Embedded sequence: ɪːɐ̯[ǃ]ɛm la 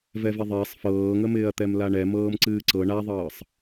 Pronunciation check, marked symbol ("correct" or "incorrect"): incorrect